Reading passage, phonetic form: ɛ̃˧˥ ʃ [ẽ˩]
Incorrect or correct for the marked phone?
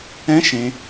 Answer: correct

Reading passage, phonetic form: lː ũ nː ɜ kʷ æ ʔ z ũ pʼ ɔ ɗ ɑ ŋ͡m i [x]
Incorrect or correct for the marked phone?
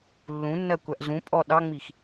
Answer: correct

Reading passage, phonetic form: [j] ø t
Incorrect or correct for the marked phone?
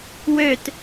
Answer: incorrect: w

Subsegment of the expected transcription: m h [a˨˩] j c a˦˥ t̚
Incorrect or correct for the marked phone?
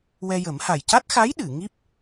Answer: correct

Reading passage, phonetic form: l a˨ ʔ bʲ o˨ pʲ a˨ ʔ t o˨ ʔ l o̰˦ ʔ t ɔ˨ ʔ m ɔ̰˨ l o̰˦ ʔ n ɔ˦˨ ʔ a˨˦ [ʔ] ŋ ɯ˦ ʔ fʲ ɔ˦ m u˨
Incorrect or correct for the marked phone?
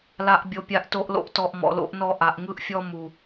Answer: correct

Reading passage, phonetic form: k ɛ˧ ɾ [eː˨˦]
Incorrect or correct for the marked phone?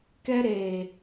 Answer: incorrect: eː˨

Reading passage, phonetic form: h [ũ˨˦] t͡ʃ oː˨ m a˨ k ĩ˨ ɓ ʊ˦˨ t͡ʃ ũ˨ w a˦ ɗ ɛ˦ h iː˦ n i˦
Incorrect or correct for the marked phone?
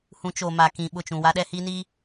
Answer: correct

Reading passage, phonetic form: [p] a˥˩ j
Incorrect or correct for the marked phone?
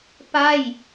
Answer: correct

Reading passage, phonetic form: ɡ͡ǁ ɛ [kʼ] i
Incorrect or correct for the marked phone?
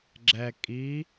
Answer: correct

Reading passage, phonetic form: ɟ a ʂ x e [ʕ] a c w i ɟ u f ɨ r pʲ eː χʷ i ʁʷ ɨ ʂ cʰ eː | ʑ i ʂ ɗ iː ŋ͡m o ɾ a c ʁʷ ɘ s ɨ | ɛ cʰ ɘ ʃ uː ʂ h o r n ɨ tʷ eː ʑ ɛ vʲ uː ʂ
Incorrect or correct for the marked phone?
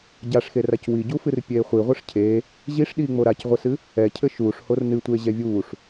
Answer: incorrect: r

